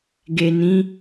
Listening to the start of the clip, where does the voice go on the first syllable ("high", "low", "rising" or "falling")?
low